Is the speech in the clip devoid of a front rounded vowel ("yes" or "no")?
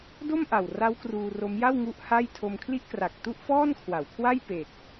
yes